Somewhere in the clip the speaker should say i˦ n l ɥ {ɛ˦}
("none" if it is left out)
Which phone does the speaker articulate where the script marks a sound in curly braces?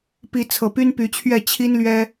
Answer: ɛ˦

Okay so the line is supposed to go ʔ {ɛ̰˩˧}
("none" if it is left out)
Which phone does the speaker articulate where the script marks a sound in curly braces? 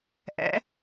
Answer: ɛ̰˩˧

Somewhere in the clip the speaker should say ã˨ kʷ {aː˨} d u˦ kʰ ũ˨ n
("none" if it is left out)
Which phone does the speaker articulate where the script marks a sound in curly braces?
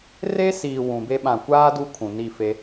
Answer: aː˦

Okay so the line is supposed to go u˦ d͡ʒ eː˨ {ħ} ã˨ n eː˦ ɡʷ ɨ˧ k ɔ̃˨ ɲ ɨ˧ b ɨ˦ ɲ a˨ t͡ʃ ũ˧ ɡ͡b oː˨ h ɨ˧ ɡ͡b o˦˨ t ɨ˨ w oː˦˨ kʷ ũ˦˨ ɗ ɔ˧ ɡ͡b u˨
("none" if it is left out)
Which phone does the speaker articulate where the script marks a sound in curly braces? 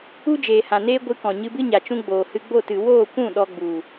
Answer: h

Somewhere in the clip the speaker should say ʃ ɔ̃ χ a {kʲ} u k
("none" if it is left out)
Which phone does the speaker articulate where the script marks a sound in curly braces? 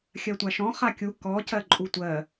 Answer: kʲ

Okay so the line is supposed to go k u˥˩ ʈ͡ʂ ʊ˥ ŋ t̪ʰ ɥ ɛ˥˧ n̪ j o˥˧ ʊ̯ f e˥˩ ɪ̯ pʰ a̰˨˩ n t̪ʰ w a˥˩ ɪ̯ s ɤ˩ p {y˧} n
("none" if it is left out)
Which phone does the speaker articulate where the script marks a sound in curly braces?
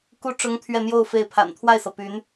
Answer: y˧˥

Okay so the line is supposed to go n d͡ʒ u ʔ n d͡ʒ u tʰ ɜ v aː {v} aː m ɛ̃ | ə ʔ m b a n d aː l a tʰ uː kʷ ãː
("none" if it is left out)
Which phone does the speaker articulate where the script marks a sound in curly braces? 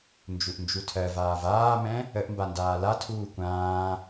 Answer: v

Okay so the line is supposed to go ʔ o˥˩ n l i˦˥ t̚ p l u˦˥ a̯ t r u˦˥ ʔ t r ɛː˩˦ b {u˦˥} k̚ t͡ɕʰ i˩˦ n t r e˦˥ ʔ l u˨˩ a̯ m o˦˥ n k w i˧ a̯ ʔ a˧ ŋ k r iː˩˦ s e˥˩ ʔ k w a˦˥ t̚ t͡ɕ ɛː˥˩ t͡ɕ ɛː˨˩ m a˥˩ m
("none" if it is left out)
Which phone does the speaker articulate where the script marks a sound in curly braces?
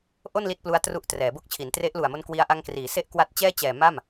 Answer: o˦˥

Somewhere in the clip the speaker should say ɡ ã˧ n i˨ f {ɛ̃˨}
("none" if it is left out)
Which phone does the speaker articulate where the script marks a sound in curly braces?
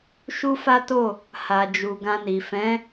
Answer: ɛ̃˨˦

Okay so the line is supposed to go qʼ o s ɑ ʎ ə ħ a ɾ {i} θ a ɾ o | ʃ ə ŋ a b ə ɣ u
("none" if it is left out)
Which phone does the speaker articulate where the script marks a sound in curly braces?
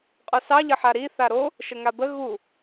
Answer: i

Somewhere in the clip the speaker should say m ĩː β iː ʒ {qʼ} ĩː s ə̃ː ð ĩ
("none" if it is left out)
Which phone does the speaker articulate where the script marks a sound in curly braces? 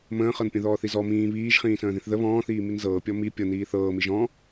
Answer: χ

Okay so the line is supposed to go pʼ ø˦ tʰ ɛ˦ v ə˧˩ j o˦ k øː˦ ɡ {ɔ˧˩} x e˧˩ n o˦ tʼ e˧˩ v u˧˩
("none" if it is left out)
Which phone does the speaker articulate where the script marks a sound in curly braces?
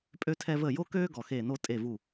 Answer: ɔ˧˩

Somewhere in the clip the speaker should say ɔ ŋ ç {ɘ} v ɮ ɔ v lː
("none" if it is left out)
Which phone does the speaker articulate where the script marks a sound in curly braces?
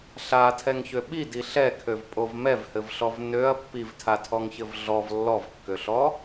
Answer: ɘ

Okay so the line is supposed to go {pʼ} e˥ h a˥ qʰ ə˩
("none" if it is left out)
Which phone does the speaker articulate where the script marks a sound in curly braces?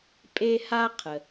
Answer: pʼ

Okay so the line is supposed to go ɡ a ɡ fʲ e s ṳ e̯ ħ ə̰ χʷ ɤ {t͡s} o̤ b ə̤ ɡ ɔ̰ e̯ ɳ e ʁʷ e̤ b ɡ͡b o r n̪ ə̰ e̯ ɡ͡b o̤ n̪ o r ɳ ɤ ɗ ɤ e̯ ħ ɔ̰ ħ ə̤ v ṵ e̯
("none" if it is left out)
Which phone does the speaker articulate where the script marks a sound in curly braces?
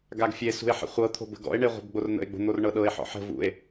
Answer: t̪ʰ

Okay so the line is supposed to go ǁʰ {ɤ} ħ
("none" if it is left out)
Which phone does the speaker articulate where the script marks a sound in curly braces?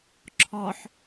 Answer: ɔ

